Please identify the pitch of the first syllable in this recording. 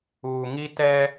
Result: low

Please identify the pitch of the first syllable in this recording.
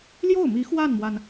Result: falling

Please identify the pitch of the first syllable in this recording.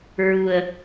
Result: low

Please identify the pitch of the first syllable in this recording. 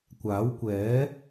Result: rising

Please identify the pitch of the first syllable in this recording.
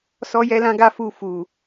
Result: high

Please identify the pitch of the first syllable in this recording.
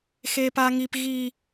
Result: high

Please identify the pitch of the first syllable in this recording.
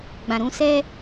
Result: low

